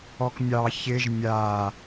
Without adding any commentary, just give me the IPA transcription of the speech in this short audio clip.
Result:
ɔkmʲɑ çɪʒ mʲa

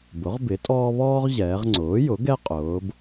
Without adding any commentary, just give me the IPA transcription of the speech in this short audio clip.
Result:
bʊ˩˥ʁbɪ˩˥tʼɔː˦ βɔː˦ʁ ʑɛː˩˧ʁŋ͡ǀʊː˩˥jʊ˩˥ ɡɛ˦ qʼʊː˩˧b

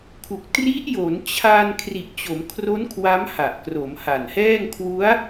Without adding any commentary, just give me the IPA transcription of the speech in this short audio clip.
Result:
kʰu˨˩k̚ tri˦˥ʔjo˩˦n t͡ɕʰa˧n kʰri˨˩ʔt͡ɕo˩˦mkʰro˦˥n kʰwa˦˥m ha˨˩ʔkro˩˦mha˨˩nhɛː˥˩ŋ kʰwu˦˥a̯

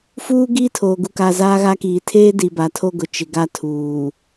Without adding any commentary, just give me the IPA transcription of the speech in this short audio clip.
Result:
fuː˦ ɡiː˦tʰoː˨ɡu˨ka˨ zaː˦ɣa˦ kiː˨ tʰeː˦di˨ ba˨tʰo˦ɡʊ˨ t͡ʃɪ˨ɡa˦tʰuː˨

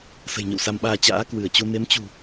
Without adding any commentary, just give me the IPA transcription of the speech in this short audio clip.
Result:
sə̤˨˩jɲə̰˧˨wsa˧mɓaː˧ t͡ɕa̰ː˧˥ kwɨ˧˩ə̯t͡ɕu˧ ne˨˦mt͡ɕṳ˨˩

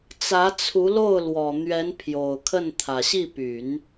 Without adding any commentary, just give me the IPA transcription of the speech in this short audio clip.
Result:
t͡sä˧˥t͡sʰu˧˥lo˥˩ʊ̯ lwɔ˨˩n̪ɥɛ˧˥n pʰjo˨˩ʊ̯kʰə˥˩n t̪ʰä˨˩ɕi˥˩py˨˩˦n

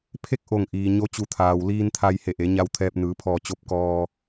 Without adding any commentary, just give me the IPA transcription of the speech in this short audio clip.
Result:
pʰe˥˨k̚ ʔo˧˩ŋ ʔiː˩ɲo˧˥ t͡ɕu˧˩t̪ʰaː˩w liː˧nt̪ʰa˧j he˧˩ʔe˩˧ɲa˧w t̪ʰɛː˧p̚nɯː˩˧pʰɔː˧˩ t͡ɕo˧˥p̚kɔː˧

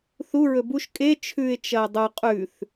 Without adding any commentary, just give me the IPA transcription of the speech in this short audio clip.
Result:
θu ɹɵbuʃ kʼe t͡ʃʰʉɪ̯ t͡ʃɐɪ̯dˤɵ qʼʉθ

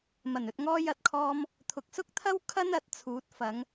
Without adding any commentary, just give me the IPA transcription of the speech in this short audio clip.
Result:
mɐ˨˩nɵ˨t̚ŋɔː˧ jɐ˧t̚kʰɔː˧m | t̪ʰʊ˨k̚sʊ˥k̚t̪ʰɐ˥w kʰɐ˥nɐ˨˥t̚ t͡sʰuː˨˥t̚fɐ˨˧ŋ

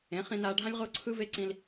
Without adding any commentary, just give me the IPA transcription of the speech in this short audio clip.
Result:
ẽ˨˦ χĩ˧naː˧ɖʱã˦lʲʁo˦˨ ǀʰɯ˦ve˦ ǀĩ˧l

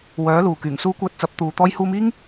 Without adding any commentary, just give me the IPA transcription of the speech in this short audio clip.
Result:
wœː˨˥ luː˨kyː˨˩ŋsuː˥ kʷœː˧t̚t͡sɐ˨˥p̚t̪uː˨ t̪ɔː˥jhuː˥m iː˥ŋ

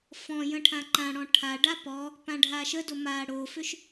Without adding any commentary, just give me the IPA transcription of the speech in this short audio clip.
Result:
fɔ̃ jə̃ʈʰãǃãɽɔ̃ ʈʰaɖa pɔ | pãɖʱaʃədo ma ɽofʏʃ

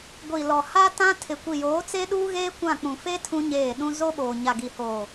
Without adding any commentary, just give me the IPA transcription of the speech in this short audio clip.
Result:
ɡʷi˨lɔ˨ ha˦tã˦ tʰɪ˨kʷi˨joː˨˦ t͡se˦ɗuː˦ɣeː˦ kʷã˦˨ k͡pũ˨fe˦ tʰũ˦ɲeː˦˨ɗũ˦ zo˦ɓoː˨ɲa˨ɡi˨ hoː˨

